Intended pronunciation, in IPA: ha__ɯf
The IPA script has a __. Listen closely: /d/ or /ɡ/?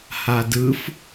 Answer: d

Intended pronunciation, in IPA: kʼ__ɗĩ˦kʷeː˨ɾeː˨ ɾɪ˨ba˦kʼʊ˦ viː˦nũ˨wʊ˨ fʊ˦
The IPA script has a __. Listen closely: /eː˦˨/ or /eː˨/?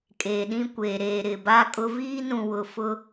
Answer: eː˨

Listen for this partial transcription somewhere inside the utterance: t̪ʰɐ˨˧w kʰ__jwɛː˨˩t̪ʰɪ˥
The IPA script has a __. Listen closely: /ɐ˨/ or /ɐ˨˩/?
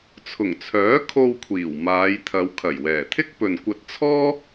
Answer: ɐ˨˩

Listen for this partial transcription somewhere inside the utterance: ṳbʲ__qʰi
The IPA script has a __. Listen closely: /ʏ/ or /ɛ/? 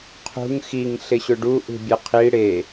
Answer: ɛ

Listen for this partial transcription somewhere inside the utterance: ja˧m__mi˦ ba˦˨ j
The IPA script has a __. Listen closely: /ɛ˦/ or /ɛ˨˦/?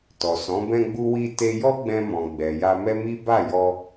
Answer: ɛ˦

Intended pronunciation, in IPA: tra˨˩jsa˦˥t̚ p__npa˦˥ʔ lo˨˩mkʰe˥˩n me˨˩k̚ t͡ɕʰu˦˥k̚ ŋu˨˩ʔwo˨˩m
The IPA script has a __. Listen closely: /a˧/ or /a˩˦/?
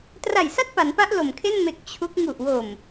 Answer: a˩˦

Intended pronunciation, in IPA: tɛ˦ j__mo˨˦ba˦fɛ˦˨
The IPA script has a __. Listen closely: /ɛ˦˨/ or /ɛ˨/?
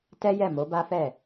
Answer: ɛ˦˨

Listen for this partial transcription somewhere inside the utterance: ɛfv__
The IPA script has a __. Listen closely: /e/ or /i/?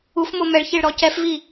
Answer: i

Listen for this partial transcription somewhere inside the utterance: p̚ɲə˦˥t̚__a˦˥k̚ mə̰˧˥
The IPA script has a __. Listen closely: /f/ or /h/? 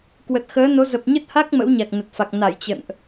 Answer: h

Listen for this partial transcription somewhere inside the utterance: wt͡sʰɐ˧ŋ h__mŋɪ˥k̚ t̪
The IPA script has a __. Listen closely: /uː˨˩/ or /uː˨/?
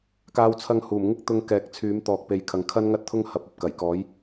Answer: uː˨˩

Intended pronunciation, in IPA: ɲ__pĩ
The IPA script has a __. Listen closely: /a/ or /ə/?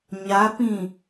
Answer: a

